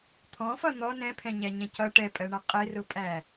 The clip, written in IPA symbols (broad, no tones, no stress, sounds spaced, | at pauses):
t̪ʰ ɔ̃ f ʌ n̪ ɔ n ɛ̃ pʰ ɛ̃ ɲ æ ɲ ɛ̃ c ʌ ʈ ɛ pʼ ɜ ɳ ʌ qʼ ɪ r ʊ pʼ æ